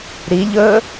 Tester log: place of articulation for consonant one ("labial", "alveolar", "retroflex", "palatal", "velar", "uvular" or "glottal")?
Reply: alveolar